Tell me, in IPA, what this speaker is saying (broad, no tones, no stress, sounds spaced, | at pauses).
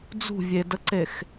d͡z ṳ vʲ e d ə ǀ e x